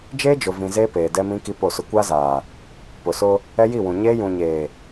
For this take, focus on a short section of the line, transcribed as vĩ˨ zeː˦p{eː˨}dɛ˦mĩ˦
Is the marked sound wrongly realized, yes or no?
no